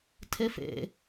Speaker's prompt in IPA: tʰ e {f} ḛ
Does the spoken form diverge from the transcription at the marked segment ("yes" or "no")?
no